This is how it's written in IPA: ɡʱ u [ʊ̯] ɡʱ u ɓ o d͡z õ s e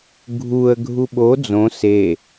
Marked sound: incorrect: ə̯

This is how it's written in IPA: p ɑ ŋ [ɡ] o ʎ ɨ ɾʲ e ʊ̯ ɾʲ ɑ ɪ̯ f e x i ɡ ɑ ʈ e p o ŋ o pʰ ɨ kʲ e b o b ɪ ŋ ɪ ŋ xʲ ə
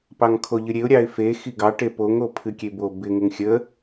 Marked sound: incorrect: kʰ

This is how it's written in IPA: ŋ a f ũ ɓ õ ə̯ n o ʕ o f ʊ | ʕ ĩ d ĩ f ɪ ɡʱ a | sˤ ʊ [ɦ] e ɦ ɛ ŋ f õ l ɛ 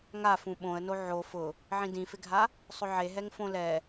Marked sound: incorrect: ʕ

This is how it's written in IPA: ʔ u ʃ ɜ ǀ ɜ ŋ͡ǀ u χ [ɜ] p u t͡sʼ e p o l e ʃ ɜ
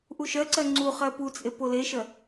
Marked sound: correct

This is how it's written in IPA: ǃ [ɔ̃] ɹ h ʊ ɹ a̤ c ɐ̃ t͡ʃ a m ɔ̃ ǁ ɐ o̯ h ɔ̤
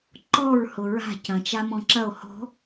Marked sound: incorrect: ɔ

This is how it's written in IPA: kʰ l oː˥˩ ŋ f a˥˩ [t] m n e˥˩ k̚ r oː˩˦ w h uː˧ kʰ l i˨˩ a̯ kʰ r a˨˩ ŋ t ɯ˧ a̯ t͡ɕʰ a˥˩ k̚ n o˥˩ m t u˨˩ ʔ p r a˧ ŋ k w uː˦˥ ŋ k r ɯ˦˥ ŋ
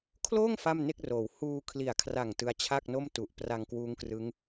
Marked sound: incorrect: none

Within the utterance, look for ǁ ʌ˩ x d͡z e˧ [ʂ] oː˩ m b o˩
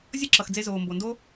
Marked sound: incorrect: z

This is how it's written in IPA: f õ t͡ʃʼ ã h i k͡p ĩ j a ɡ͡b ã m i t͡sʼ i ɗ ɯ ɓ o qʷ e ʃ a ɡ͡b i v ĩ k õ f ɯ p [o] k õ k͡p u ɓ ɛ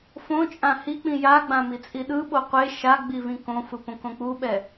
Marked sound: incorrect: õ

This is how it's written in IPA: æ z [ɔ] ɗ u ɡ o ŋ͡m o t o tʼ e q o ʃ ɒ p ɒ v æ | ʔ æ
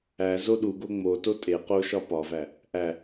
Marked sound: incorrect: o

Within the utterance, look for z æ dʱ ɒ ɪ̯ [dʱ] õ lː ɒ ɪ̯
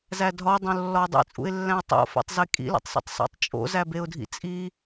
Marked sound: incorrect: dˤ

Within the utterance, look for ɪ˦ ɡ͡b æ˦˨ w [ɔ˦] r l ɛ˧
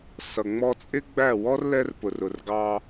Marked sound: correct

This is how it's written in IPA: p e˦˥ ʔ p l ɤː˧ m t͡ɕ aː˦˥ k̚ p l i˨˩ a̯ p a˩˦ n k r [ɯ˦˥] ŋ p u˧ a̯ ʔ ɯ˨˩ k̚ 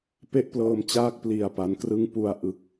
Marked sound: correct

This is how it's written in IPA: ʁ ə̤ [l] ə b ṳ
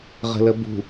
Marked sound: correct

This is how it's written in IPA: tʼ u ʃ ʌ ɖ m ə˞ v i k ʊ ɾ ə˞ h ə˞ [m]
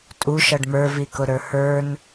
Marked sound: incorrect: n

